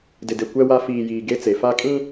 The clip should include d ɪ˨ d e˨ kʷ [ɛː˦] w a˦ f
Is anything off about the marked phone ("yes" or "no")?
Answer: yes